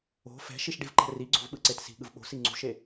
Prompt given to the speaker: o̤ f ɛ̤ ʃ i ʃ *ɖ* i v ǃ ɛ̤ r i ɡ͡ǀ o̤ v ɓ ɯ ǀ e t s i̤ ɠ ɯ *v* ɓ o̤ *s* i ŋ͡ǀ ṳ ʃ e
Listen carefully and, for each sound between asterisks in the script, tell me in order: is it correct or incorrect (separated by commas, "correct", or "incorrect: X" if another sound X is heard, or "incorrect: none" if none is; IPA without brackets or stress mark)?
correct, correct, correct